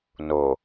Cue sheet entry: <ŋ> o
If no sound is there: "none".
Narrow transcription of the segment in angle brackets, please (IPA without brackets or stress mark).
n